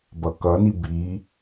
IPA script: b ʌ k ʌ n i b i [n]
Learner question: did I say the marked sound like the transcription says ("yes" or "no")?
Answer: no